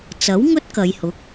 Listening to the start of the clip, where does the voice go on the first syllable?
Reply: rising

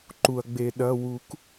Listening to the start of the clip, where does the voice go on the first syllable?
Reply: low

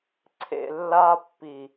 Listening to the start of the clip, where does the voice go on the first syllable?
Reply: low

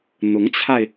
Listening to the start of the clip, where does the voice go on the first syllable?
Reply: rising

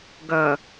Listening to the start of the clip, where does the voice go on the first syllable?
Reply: low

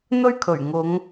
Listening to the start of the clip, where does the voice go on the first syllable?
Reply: high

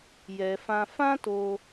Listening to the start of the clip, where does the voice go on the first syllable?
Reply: low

